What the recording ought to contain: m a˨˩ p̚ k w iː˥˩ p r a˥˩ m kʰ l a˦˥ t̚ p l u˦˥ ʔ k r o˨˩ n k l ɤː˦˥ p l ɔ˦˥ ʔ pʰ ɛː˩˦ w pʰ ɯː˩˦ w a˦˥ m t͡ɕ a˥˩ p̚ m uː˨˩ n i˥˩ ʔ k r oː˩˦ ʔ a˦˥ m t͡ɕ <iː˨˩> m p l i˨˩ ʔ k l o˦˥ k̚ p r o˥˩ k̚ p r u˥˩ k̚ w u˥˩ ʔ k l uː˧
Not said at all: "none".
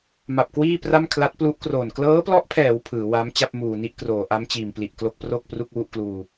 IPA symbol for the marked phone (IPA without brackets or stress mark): iː˨˩